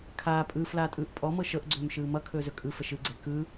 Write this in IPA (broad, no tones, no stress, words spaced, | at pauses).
kʰaː pʼɯːflaːtʼɯːʔ pʼɔmɤ ʃɤʔɡ͡ǀɵːmʃɯː mʌkʰɵːzɵ kʼɯfə ʃɯɡ͡ǀɛ kɯ